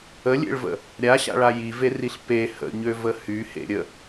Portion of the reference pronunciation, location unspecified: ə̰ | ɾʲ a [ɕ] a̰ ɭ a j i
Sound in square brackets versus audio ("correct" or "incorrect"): correct